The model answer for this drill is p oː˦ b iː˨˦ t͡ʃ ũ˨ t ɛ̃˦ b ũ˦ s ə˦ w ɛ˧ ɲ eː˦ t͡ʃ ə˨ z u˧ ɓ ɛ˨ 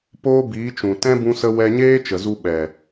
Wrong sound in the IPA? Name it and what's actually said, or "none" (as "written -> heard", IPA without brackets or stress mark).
none